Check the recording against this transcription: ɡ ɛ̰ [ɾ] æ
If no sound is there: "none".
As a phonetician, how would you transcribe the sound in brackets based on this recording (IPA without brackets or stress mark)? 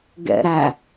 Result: ɾ